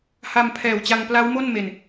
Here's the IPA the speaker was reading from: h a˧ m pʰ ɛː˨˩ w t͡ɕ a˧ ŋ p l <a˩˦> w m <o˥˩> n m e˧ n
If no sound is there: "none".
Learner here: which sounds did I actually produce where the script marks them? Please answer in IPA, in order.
a˦˥, o˥˩

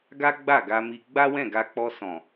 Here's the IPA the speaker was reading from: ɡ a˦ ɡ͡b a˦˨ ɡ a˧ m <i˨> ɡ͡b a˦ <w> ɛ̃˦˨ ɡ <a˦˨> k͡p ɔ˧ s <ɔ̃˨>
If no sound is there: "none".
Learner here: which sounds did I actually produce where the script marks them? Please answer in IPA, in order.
i˧, w, a˧, ɔ̃˨

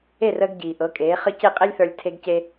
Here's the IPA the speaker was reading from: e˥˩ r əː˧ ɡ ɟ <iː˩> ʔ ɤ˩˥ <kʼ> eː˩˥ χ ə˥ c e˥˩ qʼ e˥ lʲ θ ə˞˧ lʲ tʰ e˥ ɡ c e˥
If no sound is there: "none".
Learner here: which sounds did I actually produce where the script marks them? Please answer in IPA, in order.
iː˩, kʼ

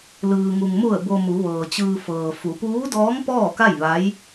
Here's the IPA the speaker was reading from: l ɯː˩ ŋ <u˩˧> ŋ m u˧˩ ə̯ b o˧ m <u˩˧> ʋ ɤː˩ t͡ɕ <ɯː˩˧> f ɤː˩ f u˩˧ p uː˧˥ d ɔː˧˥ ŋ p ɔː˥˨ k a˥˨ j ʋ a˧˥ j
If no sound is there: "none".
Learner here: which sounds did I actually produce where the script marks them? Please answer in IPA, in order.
u˩, u˩˧, ɯː˧

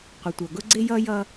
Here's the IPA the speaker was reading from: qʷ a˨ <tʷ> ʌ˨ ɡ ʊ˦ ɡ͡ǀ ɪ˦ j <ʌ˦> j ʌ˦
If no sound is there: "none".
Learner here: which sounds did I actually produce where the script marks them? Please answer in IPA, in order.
tʷ, ʌ˦

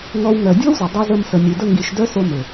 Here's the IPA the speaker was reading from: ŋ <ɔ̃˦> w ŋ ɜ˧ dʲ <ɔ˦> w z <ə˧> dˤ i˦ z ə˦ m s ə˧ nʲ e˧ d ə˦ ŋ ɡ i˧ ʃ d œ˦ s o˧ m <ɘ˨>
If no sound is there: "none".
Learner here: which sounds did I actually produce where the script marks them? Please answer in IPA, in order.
ɔ˦, ɔ˦, ə˨, ɘ˨

